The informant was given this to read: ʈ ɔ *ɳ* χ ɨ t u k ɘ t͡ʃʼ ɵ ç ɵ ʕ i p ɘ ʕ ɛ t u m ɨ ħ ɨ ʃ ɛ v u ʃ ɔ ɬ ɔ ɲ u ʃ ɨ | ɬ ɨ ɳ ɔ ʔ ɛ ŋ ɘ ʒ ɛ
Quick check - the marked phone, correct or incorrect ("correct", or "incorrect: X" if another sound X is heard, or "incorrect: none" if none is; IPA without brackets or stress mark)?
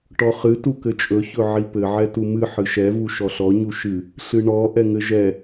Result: incorrect: none